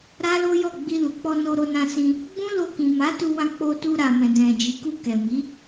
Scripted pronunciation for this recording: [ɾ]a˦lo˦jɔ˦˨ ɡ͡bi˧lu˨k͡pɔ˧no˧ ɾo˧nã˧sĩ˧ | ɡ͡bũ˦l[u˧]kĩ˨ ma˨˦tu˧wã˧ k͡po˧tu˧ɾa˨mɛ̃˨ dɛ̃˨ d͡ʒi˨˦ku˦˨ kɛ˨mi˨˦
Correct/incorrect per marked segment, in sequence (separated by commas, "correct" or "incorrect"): correct, incorrect